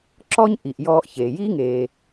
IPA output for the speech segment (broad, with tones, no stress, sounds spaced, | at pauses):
ǁ ɔ˥ ɲ ʔ i˩ ʔ j ɔː˧ ʔ ç eː˩ j i˥ ŋ eː˩